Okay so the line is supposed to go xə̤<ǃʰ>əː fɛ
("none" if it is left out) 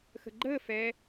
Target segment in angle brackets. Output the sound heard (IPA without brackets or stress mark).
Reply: ɡ͡ǃ